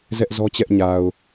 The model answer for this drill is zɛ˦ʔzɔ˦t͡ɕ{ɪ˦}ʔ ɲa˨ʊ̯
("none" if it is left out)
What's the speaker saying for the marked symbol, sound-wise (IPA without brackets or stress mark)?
ɛ˦